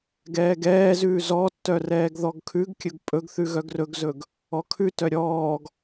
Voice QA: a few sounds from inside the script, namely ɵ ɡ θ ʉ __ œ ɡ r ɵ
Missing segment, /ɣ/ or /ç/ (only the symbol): ɣ